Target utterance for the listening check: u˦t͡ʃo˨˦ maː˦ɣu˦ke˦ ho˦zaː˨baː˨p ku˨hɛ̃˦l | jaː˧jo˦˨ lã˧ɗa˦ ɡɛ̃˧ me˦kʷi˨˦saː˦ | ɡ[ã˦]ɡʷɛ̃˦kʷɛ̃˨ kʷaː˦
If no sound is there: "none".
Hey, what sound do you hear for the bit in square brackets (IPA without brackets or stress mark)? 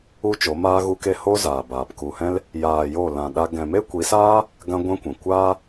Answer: ã˦